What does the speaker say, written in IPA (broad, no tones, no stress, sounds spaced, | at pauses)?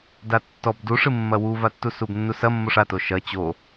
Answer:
d a tː ɔ b d u ʂ ɨ mː ɐ w u v a tː u s u b nː u s ɐ mː o ʂ a t o ʃ ɐ t͡ɕ o